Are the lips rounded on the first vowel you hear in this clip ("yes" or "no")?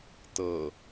no